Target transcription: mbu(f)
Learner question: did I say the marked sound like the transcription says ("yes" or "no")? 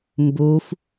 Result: yes